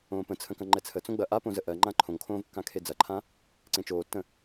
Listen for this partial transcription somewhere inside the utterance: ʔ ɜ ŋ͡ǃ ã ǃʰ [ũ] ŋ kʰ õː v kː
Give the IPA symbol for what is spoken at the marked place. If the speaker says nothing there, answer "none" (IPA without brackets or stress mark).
õ